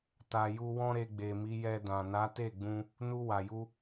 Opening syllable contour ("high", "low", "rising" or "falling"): low